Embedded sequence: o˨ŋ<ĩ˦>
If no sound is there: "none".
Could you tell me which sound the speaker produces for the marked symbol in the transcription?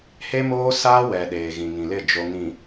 ĩ˨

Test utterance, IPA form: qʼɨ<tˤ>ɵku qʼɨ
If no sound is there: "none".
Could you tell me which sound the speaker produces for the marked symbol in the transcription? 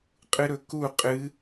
ɾ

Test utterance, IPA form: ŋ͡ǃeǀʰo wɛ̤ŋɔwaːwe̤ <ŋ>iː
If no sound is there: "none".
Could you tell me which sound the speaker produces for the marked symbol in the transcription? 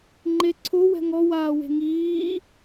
ŋ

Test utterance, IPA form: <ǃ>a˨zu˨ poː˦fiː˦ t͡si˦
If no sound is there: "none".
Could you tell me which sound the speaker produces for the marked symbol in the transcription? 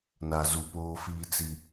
n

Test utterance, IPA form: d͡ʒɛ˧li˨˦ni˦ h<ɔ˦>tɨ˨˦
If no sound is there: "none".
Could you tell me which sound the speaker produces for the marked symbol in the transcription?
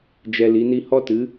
ɔ˦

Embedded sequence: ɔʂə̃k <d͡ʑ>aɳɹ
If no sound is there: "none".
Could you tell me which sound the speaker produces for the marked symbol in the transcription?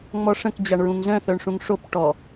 d͡ʑ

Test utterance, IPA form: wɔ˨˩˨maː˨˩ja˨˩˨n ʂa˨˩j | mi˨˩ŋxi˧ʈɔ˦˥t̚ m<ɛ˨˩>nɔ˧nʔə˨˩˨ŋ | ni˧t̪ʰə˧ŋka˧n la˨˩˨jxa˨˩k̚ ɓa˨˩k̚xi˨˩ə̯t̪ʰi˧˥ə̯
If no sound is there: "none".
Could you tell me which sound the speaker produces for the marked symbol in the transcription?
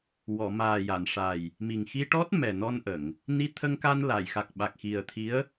ɛ˨˩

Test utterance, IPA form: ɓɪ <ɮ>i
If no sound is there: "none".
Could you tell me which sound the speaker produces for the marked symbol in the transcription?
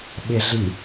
ɮ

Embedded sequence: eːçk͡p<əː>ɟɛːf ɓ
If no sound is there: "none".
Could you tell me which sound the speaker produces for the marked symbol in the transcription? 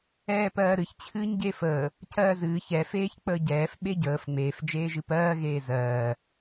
əː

